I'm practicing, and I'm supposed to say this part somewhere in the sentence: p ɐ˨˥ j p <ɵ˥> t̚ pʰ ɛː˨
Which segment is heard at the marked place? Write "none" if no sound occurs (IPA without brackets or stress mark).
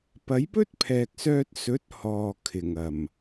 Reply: ɵ˥